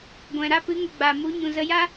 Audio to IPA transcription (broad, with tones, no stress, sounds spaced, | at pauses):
ɡʷ ɛ̃˨ ɾ a˧ p ɨ˨˦ ŋ ə˨ ɡ͡b a˨ m u˨˦ ɲ ũ˨ z ə˧ j a˦